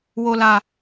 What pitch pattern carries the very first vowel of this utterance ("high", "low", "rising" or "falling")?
low